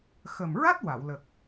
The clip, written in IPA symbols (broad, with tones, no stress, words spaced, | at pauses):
xə˨˩mɹa˦˥t̚ wa˨˩˨w lə˨˩k̚